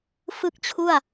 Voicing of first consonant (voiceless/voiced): voiceless